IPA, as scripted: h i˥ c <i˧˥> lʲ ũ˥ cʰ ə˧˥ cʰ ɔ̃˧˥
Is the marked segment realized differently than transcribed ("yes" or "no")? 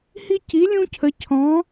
no